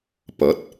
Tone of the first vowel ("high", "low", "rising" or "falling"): rising